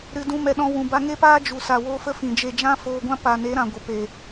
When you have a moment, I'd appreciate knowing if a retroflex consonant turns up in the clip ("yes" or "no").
no